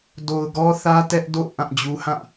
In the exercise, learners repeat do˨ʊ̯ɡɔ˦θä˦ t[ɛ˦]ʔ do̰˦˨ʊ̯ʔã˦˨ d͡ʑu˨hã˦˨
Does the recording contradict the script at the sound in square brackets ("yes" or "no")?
no